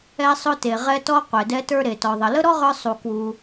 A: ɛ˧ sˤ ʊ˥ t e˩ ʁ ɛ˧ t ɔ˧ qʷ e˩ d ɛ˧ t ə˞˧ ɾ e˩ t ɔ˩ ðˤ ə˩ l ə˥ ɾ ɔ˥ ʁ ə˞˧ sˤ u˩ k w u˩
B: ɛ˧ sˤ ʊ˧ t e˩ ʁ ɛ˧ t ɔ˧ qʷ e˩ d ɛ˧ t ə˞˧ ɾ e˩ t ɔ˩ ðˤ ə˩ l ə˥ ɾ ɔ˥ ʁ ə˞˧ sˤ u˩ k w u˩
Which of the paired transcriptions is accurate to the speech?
B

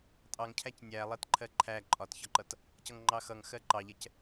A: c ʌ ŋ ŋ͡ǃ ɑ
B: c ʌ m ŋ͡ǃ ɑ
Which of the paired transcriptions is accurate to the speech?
A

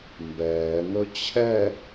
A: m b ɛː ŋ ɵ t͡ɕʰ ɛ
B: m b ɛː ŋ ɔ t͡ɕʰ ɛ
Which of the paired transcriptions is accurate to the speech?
A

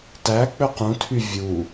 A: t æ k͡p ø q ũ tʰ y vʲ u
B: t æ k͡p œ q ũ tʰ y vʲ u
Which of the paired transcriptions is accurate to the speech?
A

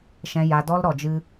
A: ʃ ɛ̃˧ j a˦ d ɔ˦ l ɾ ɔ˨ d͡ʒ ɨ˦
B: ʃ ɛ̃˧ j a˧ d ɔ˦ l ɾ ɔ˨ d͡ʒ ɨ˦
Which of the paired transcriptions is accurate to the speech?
B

